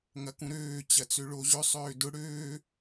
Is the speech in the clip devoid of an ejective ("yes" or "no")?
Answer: yes